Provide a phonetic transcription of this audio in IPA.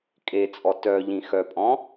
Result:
kʼ e t͡sʼ ɔ t œ ʎ ĩ x œ pʼ ɔ̃

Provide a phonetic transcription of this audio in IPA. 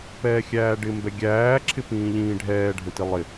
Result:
p ɛː xʲ æː ɖ ɪ m b ɛ ɡʲ æː ǁʰ ɪ p ĩː ʎ ĩː ɖʱ ɛː ɖʱ ə̃ t i lˠ ɪ

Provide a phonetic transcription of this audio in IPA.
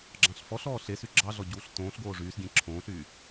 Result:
ɡ͡ǁ ɑ̃ ɬ f ɔ ɬ ɔː ɬ e s y ɡ͡ǁ ɑ ɮ ɔ ɟ uː ɬ t õː ɬ ɡ oː ʐ yː s ɡʲ ẽ ǁʰ õː ɬ y

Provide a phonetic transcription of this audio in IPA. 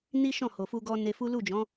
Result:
n i˦ ʃ ɔ̃˦˨ h o˨ f u˧ ɡ ɔ˧ n e˧ f u˦ l u˦˨ d͡ʒ ɔ̃˨˦

